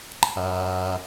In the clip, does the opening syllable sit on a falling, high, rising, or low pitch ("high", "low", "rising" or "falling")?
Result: low